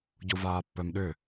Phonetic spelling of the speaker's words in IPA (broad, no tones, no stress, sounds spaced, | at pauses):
ɟ u v aː pː œ m ɗ ʏ